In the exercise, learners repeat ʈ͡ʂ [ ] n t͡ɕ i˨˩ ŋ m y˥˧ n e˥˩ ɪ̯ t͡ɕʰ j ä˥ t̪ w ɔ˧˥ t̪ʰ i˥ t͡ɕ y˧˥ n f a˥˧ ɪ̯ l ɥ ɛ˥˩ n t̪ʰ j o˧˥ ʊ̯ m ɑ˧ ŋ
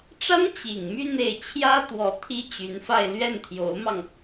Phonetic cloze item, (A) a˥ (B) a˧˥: A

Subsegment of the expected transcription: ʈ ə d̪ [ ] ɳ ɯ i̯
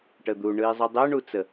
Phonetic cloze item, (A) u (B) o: A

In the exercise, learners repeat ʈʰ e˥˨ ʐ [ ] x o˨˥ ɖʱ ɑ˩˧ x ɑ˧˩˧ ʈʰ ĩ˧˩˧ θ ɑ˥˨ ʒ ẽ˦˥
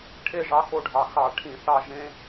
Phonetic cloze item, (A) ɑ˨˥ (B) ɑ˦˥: A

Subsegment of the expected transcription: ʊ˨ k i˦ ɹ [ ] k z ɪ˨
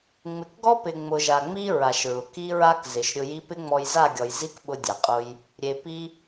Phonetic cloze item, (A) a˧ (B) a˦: B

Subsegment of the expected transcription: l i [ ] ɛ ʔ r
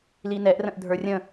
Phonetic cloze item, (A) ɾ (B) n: B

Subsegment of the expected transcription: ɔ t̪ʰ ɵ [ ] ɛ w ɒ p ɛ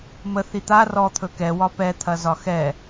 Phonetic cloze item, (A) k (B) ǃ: A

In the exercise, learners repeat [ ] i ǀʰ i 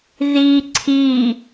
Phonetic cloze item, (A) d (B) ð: B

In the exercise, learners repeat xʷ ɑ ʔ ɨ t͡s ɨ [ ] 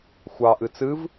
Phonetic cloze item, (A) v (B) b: A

